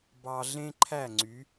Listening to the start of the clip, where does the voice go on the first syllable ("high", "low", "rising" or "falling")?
low